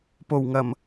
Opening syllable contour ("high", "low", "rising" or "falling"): low